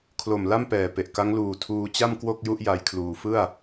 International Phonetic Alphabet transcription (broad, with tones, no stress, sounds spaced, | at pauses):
kʰ l o˨˩ m l a˥˩ m p ɛː˨˩ p e˨˩ ʔ k a˦˥ ŋ l uː˨˩ tʰ uː˧ t͡ɕ a˥˩ m k w o˥˩ k̚ j u˥˩ ʔ j a˦˥ j kʰ l uː˧ f ɯ˥˩ a̯